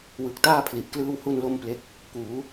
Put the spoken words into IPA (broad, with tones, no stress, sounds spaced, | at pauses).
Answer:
w ɯ˨˩ k̚ t aː˥˩ pʰ l i˨˩ ʔ k l ɯː˥˩ w h u˥˩ n l o˥˩ m p l e˦˥ k̚ | k uː˩˦